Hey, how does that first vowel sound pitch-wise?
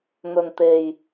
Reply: low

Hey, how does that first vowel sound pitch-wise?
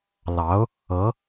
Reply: rising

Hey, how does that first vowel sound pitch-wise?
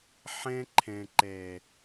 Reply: high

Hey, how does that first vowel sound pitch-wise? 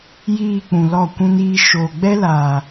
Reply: low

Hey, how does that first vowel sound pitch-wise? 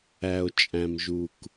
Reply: low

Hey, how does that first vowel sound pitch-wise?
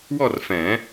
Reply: falling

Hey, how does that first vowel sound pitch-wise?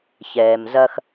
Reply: low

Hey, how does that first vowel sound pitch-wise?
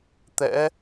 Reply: rising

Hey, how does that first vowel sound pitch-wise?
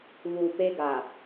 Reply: low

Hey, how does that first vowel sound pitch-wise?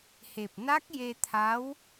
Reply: low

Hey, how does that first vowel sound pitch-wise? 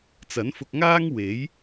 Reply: rising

